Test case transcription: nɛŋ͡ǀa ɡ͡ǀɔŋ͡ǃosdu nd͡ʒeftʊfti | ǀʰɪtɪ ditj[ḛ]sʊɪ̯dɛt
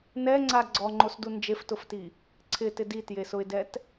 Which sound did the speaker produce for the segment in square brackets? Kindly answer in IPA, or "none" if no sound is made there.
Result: e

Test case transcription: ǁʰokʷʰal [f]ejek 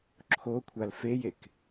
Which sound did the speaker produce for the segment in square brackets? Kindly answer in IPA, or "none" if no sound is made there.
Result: f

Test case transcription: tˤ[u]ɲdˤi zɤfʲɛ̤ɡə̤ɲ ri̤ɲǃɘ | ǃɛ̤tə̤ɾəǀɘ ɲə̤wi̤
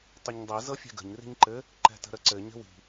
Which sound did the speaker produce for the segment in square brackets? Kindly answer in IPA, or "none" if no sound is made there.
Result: ø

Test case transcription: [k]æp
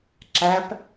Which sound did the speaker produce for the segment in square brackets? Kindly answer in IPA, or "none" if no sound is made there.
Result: ǁ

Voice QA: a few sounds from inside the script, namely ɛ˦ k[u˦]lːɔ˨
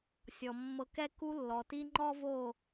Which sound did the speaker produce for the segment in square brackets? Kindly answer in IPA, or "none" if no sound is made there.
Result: u˧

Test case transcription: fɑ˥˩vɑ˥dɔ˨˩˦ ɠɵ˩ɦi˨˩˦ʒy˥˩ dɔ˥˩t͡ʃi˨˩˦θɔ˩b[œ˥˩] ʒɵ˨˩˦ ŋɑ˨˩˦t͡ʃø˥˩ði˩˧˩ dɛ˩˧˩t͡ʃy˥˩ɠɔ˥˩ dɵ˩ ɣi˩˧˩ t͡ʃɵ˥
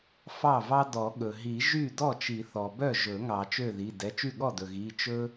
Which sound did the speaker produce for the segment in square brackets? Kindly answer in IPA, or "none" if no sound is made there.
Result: œ˥˩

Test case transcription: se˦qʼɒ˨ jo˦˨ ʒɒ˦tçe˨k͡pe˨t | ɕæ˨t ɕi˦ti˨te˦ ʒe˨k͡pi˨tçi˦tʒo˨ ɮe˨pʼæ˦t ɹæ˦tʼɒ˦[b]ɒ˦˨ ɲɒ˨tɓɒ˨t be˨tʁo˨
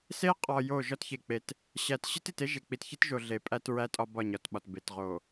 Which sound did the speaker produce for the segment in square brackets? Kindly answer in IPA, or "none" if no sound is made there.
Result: b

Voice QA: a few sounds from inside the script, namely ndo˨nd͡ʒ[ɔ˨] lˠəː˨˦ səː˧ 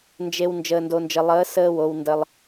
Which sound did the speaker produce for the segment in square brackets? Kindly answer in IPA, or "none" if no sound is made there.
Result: ə˨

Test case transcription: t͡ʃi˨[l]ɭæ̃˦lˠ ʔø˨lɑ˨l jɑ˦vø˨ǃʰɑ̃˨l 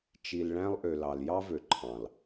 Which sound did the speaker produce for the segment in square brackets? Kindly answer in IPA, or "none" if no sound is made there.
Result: l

